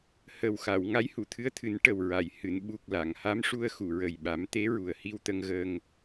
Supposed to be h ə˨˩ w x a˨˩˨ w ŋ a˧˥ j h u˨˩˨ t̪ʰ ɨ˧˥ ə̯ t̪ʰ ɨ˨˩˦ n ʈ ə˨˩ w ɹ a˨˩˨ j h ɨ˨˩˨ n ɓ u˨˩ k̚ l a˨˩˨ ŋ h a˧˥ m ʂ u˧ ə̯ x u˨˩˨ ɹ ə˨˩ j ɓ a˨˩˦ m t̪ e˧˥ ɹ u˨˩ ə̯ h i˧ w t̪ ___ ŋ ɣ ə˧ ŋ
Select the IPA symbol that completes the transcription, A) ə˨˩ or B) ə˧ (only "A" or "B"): B